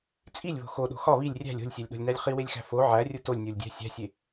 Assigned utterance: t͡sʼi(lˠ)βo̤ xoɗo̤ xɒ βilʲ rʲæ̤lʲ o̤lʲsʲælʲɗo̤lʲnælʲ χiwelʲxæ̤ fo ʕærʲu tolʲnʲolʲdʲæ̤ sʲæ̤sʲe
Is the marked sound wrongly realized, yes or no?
yes